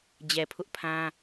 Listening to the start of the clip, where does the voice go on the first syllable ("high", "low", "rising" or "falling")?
low